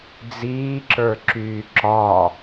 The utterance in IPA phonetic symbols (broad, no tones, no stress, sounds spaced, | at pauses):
d͡z iː ǁ ə˞ ǁ yː ǁ ɒ